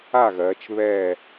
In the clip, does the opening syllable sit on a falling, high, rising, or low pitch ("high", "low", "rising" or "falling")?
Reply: falling